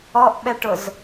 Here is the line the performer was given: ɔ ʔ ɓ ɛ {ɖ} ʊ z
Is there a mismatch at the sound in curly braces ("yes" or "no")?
yes